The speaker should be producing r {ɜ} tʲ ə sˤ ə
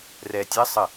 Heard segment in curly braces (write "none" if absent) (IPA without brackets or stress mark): ɛ